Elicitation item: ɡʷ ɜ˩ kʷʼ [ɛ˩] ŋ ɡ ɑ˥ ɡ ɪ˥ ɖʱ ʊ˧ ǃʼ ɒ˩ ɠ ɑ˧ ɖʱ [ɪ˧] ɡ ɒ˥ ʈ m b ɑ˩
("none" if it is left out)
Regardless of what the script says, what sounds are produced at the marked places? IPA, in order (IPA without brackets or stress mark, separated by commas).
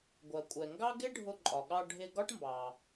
ɛ˩, ɪ˧